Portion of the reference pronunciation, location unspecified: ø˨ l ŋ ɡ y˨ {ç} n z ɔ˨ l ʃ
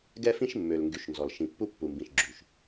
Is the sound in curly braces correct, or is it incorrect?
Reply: incorrect